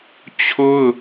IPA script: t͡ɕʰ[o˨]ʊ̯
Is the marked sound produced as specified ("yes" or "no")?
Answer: no